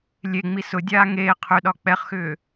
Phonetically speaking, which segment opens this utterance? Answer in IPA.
lʲ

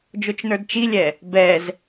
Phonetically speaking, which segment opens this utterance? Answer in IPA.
d͡ʒ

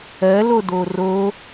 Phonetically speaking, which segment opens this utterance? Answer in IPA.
ɜ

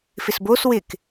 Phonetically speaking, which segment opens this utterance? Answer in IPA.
f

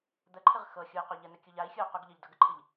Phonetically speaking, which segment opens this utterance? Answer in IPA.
d̪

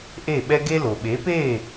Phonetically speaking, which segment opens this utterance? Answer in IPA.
ʔ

